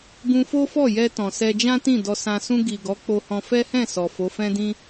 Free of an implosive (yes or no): yes